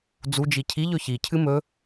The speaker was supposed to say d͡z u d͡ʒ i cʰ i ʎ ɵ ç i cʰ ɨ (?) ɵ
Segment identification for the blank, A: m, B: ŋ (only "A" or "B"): A